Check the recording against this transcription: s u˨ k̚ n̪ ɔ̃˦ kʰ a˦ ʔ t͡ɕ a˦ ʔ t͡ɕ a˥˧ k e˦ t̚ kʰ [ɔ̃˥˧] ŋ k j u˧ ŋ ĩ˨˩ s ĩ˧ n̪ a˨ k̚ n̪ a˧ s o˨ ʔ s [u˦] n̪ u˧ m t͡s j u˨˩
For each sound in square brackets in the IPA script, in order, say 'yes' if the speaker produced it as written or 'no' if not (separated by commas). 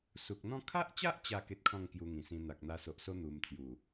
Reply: yes, no